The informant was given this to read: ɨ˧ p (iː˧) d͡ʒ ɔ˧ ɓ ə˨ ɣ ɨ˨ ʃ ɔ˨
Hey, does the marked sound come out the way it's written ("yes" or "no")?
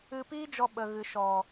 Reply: no